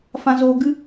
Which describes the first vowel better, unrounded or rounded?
unrounded